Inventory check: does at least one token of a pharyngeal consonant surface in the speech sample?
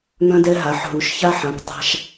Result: yes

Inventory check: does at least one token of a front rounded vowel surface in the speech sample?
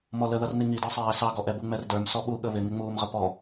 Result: no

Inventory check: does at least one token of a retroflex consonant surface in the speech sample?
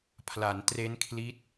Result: no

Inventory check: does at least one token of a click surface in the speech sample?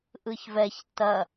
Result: no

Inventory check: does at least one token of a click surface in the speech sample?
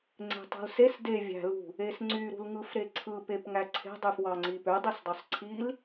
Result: yes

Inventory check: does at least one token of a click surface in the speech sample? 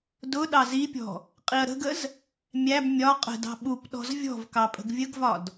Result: no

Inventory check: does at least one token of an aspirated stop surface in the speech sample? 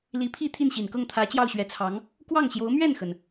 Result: yes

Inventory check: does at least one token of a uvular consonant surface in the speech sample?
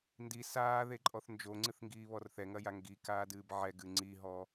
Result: no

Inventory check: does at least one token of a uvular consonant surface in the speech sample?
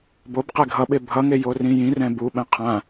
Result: yes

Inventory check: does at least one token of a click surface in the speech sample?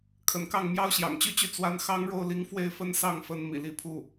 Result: no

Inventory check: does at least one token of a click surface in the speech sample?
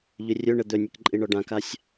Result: yes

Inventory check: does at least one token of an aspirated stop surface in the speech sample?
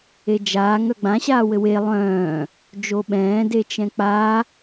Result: no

